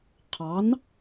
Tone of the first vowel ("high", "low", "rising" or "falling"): rising